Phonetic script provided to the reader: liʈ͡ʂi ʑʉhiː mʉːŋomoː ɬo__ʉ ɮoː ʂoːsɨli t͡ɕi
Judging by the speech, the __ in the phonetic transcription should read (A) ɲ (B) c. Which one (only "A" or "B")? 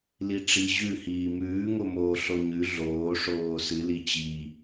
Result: A